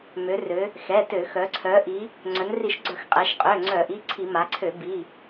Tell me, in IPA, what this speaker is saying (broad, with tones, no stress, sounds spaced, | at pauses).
m ø˩˧ r ø˩˧ | x ɛ˩˧˩ t ø˧˩˧ x œ˩˧ ǀʰ œ˩˧ ʔ i˩˧ | ŋ͡ǀ œ˩˧ n r i˧˩˧ ʃ ɡ͡ǀ œ˧˩˧ x qʼ ɛ˩˧ ʃ qʼ ø˩˧˩ ŋ͡ǀ œ˧˩˧ ʔ i˩˧˩ ǀʰ i˧˩˧ m a˩˧ ǀʰ ø˧˩˧ b i˩˧˩